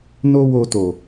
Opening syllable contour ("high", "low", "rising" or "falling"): high